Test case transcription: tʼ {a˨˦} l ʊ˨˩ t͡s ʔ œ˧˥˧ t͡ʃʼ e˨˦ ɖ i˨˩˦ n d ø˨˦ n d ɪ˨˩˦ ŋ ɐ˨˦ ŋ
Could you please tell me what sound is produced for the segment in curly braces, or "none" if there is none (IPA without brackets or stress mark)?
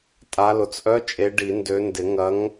a˨˦